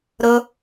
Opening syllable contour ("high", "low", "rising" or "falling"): high